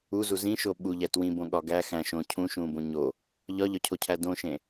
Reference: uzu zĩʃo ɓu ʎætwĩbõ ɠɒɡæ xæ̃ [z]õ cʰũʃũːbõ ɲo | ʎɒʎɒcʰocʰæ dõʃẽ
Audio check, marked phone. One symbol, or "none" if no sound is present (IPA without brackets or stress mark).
ʃ